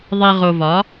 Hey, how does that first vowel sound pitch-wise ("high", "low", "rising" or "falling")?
low